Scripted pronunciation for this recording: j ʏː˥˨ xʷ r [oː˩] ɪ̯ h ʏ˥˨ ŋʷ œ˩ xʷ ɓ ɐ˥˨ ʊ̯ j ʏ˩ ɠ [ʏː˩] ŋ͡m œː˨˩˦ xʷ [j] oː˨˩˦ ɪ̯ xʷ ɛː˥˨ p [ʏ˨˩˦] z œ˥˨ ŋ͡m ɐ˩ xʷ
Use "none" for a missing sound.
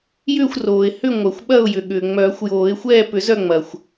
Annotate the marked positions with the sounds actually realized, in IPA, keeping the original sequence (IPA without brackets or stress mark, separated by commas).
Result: oː˩, ʏː˩, j, ʏ˨˩˦